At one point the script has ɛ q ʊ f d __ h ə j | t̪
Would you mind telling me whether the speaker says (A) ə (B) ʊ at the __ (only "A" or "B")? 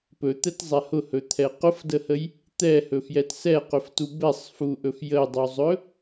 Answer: A